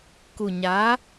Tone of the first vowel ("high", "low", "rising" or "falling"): low